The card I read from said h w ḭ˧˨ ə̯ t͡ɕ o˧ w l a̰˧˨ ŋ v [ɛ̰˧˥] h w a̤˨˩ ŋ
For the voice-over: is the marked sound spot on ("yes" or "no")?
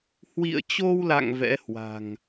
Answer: yes